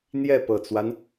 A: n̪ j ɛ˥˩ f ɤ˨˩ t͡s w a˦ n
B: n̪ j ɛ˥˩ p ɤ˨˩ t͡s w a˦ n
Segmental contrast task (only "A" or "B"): B